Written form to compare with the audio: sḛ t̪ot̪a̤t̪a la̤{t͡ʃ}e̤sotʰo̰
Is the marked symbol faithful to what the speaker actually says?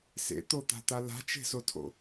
yes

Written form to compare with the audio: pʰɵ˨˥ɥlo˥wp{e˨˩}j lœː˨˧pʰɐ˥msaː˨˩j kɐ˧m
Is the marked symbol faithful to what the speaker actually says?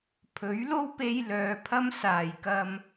no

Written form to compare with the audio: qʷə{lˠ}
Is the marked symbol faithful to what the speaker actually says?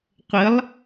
yes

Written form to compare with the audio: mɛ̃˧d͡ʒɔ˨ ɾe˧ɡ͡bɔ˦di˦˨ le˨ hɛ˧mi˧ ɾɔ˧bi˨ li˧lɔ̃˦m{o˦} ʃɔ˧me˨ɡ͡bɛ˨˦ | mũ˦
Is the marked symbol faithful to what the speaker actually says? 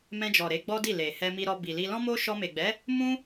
yes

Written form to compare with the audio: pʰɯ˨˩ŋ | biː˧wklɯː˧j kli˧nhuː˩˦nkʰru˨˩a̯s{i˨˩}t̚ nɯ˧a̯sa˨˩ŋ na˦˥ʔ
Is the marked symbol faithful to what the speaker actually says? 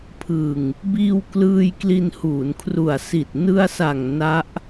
yes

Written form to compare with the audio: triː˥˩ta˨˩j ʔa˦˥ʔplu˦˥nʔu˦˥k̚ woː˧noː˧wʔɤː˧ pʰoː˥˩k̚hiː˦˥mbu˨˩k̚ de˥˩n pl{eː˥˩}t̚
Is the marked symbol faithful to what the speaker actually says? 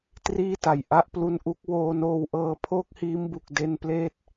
yes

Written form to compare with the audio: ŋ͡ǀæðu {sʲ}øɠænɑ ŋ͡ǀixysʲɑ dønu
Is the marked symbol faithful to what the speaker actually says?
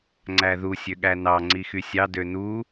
yes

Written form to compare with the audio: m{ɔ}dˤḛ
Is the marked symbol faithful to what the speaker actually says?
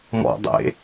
no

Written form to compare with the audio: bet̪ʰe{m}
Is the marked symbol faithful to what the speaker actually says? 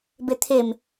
yes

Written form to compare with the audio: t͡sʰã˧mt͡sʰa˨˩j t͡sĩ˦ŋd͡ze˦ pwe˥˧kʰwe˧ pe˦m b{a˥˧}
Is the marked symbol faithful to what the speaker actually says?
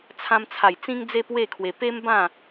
no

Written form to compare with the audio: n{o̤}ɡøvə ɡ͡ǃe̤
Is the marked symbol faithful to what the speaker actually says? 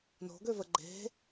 yes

